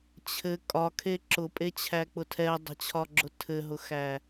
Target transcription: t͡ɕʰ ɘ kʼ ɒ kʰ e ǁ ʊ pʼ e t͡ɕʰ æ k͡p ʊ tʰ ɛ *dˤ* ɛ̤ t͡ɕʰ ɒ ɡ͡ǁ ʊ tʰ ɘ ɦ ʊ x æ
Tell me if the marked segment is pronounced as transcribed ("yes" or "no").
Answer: yes